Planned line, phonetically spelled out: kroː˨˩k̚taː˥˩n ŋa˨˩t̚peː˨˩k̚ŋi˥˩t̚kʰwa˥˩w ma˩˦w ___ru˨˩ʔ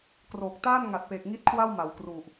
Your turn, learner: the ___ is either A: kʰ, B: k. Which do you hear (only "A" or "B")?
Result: B